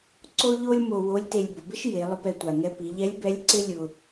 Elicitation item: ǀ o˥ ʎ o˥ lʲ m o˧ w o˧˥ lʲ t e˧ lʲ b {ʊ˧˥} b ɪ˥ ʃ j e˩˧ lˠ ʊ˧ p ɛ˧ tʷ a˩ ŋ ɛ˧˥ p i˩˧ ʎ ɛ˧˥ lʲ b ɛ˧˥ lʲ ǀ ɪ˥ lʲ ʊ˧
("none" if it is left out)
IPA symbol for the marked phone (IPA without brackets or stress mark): ʊ˩˧